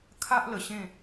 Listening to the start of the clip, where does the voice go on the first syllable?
high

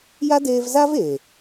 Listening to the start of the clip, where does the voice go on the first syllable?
high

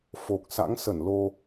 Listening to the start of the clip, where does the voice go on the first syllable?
low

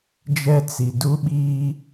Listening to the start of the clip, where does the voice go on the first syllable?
high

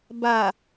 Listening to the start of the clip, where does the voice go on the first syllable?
low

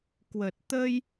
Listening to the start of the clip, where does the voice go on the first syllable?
low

